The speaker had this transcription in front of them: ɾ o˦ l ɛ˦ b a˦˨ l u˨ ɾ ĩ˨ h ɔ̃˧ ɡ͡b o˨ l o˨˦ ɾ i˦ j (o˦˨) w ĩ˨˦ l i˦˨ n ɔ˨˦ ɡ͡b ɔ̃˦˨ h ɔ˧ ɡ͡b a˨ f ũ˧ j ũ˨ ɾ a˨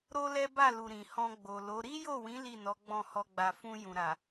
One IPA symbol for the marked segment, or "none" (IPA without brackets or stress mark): o˦˨